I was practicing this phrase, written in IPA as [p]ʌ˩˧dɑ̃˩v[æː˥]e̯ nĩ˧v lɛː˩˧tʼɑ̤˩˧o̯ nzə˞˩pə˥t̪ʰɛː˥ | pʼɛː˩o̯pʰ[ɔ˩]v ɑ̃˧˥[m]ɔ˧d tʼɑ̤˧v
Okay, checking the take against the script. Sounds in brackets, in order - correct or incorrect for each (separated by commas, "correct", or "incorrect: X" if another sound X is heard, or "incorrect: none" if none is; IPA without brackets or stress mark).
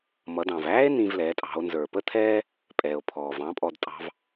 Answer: incorrect: m, correct, incorrect: ɔː˩, incorrect: pʼ